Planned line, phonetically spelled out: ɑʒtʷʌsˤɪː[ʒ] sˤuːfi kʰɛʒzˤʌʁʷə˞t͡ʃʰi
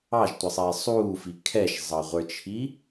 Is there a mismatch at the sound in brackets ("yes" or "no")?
yes